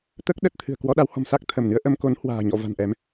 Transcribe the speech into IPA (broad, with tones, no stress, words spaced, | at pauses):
t̪əː˦˥k̚ɗə˦˥t̚t̪ʰɨ̤˨˩ə̯ kwɔ˧ɗa˨˦whɔ̤˨˩m sa˦˥k̚ t̪ʰə˧˩m nɨ˨˦ə̯ ʔə˧mko˨˦nhwa̤ː˨˩ ɲɔ̰˧˨ va̤˨˩nʔɛ˨˦m